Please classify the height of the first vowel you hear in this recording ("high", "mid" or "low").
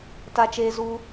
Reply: low